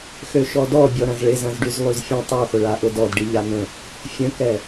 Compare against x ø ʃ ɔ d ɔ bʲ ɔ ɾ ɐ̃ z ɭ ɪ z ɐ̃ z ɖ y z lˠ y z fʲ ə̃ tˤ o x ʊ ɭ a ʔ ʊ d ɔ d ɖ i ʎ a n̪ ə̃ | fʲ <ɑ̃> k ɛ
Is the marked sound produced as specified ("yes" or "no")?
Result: no